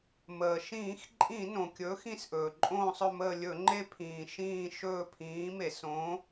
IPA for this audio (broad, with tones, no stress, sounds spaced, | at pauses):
m əː˩ ʃ ĩː˧˩˧ x ǃʼ ĩ˧˩˧ n õ˩ kʲ ɵː˨˥ x ĩ˦˨ s ʔ ɵː˩ ǃʼ õː˦˨ sˤ ɵ˦˨ m əː˦˨ lʲ ɵ˧˩˧ ŋ͡ǃ e˦˨ pʰ ĩː˩ ʃ ĩː˦˨ ʃ ɵː˦˨ pʰ ĩː˨˥ m e˧˩˧ s õ˨˥